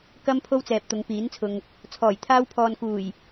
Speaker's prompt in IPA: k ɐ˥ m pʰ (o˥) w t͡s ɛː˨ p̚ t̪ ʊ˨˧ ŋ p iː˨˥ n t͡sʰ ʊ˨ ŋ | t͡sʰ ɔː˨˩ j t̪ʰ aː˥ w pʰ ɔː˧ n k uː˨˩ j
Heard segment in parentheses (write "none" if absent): o˥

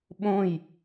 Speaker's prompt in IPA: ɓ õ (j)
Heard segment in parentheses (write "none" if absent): j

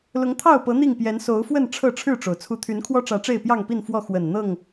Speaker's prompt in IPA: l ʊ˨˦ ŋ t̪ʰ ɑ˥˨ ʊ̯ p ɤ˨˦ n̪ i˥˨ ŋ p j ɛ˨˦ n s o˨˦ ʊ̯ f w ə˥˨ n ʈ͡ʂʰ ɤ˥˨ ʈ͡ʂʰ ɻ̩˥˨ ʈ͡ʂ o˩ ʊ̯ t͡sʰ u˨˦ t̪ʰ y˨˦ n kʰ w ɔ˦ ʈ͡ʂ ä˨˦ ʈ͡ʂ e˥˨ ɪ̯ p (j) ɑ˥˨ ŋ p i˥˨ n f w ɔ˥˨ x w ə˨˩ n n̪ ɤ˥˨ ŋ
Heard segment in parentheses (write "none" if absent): j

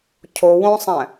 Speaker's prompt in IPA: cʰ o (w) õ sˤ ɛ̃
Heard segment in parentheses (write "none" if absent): w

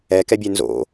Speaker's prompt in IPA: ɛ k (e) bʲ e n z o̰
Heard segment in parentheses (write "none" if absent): ɛ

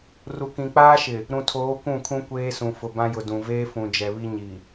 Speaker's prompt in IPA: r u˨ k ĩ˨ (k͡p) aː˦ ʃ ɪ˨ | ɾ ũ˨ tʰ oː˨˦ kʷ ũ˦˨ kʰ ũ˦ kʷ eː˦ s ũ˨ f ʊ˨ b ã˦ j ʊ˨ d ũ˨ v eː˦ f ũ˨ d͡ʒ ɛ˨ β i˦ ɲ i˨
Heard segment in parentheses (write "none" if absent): k͡p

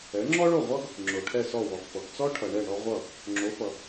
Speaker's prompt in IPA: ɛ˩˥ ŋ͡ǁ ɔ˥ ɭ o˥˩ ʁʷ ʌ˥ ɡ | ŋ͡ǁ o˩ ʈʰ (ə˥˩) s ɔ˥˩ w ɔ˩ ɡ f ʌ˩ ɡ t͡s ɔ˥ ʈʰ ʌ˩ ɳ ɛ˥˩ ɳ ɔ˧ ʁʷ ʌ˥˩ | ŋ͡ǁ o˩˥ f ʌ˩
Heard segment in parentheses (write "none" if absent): ɛ˥˩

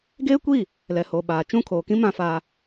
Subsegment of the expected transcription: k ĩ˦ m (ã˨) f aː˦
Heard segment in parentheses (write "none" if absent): ã˦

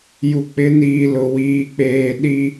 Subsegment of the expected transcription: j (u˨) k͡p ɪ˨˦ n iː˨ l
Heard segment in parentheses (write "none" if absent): u˨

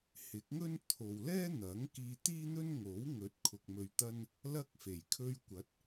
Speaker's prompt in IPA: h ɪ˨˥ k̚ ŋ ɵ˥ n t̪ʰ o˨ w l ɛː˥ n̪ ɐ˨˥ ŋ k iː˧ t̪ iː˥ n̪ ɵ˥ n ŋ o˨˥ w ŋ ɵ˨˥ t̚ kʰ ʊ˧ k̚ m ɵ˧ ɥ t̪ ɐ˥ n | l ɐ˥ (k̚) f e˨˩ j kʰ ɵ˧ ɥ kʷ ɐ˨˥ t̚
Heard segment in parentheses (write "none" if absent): k̚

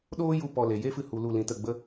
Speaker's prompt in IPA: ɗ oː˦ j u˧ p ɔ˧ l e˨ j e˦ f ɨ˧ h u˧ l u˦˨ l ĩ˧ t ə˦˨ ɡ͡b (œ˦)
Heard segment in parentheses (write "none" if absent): ə˦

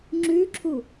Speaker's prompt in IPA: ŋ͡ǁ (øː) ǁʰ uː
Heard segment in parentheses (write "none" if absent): ʉː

